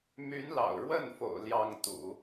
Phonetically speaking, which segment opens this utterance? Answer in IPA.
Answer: m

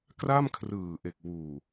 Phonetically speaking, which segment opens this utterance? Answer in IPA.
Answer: k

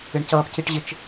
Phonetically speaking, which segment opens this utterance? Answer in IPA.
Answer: ɪ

